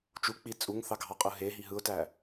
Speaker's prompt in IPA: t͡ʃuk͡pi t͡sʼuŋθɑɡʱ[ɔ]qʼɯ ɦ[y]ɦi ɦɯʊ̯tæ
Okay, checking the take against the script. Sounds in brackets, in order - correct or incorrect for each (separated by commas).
incorrect, incorrect